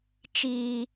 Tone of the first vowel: low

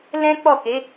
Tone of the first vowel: high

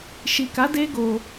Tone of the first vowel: low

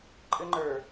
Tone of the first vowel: high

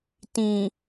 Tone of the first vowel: low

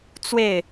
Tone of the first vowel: falling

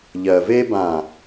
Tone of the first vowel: low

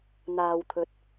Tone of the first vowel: low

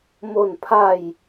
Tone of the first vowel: falling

